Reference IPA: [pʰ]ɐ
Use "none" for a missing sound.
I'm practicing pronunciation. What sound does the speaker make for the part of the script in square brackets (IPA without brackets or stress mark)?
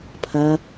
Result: pʰ